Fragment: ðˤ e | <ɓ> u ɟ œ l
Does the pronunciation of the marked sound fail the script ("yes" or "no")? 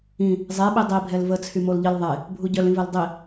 yes